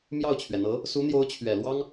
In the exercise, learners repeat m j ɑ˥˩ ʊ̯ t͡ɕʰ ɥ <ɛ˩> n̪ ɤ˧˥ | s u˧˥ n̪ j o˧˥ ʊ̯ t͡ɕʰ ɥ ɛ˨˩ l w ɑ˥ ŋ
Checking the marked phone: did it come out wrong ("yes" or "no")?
no